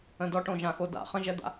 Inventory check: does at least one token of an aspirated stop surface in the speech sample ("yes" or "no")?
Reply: no